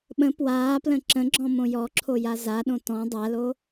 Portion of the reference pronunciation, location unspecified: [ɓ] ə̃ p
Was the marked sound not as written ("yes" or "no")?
no